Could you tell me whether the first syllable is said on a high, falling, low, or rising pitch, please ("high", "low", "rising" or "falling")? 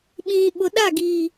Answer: low